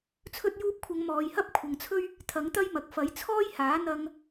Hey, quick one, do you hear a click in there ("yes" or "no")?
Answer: no